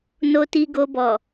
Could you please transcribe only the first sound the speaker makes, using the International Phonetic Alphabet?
n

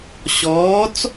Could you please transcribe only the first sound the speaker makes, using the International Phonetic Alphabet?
ɕ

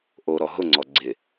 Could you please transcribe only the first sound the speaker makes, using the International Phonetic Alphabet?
ʔ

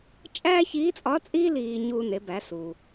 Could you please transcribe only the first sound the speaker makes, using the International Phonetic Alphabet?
t͡ʃʼ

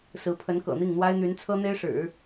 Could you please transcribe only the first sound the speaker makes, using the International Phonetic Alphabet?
s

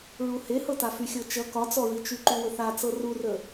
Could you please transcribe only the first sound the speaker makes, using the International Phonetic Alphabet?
ɹ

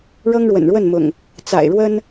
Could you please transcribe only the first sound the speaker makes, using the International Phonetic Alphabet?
ɻ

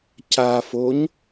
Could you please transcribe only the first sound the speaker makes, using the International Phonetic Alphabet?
c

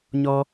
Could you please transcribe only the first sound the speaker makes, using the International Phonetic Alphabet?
ɲ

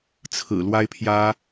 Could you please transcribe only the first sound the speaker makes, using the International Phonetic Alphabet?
t͡sʰ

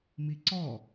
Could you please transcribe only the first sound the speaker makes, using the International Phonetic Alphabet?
m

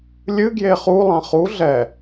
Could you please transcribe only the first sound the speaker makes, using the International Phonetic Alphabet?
lʲ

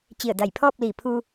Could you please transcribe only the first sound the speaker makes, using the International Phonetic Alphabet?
t͡ɕ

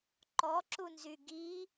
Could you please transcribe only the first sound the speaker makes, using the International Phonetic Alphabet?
ǃ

